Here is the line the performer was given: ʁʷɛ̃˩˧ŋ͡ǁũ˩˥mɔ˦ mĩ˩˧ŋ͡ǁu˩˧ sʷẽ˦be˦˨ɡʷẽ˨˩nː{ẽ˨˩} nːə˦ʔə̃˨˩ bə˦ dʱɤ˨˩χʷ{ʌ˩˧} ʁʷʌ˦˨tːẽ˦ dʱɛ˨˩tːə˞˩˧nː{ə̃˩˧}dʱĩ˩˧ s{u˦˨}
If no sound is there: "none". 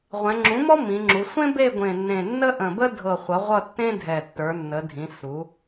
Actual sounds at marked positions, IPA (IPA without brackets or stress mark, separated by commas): ẽ˨˩, ʌ˩˧, ə˩˧, u˩˧